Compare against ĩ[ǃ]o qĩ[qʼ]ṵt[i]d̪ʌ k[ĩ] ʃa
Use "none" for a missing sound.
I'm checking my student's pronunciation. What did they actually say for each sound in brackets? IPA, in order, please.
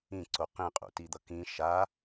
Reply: ǀ, qʼ, i, ĩ

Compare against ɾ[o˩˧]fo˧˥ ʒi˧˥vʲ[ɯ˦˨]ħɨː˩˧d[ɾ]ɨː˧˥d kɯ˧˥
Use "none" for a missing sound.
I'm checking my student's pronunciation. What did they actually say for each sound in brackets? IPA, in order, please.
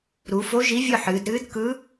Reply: u˩˧, ɯ˦˨, ɾ

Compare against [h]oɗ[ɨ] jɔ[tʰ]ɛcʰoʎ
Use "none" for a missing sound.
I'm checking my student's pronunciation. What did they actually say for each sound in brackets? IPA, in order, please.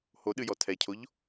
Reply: h, ɨ, tʰ

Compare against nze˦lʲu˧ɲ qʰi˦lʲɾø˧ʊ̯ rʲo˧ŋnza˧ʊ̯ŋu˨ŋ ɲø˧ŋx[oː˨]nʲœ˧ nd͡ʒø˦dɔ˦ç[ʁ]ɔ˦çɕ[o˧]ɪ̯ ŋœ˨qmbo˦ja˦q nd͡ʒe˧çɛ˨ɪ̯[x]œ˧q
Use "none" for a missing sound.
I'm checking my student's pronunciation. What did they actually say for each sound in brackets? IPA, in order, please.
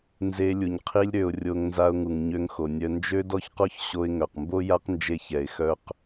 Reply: o˨, q, o˧, x

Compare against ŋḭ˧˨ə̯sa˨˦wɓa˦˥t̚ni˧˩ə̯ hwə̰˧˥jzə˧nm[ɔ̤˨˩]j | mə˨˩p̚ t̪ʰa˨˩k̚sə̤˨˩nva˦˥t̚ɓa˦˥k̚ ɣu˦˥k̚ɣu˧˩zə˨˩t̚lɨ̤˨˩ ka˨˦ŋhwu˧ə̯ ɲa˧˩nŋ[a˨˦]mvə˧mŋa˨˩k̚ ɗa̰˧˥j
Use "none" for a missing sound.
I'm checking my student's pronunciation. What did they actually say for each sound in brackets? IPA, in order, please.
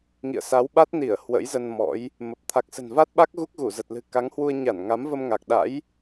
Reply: ɔ̰˧˥, a˨˦

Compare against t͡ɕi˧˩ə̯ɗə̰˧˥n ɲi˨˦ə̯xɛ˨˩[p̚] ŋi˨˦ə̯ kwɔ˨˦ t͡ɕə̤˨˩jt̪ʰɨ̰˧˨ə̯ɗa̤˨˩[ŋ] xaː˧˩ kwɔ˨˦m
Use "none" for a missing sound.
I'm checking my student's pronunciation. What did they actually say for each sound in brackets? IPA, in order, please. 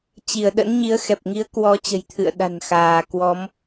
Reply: p̚, n

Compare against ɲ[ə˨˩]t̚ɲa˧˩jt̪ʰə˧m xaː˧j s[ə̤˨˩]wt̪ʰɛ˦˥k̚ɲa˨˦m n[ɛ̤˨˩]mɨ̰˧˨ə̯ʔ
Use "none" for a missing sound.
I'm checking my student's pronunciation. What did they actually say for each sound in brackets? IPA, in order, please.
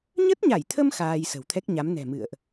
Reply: ə˦˥, ə̤˨˩, ɛ̤˨˩

